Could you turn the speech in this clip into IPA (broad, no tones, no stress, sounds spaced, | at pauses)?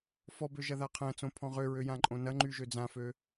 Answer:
f ɔ b ø ʒ ɐ ð a qʰ ɐ̃ t͡s õ pʰ ɔ̃ ʁ ø ɹ ø j ã ǃʼ õ n ɐ ŋ͡ǃ y ʒ ø d͡z ã f ø